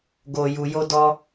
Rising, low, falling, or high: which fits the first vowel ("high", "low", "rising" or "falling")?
low